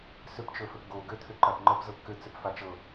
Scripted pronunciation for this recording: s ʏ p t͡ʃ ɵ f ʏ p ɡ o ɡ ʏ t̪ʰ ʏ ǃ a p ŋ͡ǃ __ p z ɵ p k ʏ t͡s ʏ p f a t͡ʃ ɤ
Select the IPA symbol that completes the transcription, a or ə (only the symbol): ə